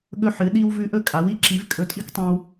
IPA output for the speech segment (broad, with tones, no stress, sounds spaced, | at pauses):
ɠ ɵ˥ ħ ɨ˩˥ ɗ i˥ w v ʉ˥ ʔ ɵ˥ kʼ a˩˥ w i˥ ǁ i˩˥ v kʼ ɵ˧ tʼ i˥ k tˤ õ˧ w